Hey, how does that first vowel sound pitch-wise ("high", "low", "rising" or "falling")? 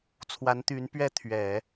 rising